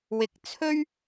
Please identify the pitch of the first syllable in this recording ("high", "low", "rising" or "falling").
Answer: low